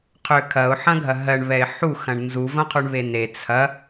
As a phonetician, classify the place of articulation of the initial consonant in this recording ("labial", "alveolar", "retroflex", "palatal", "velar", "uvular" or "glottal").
uvular